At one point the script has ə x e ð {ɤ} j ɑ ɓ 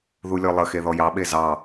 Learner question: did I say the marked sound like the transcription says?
no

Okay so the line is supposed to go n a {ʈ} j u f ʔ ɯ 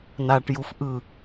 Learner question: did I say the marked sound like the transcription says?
yes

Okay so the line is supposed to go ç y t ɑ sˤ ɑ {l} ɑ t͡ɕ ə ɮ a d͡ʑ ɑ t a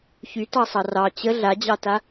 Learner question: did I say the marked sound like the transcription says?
no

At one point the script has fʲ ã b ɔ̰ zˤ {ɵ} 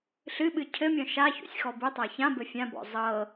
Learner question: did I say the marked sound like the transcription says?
no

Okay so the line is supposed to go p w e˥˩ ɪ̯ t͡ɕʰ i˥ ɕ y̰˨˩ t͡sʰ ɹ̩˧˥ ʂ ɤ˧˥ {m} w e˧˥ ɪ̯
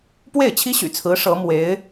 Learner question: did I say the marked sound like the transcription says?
yes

